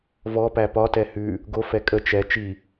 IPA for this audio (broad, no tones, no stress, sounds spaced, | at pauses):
v ɔ p æ p ɒ t ɛ h ʉ | ɡ o f ɛ kʼ ə t͡ʃ ɛ t͡ʃ i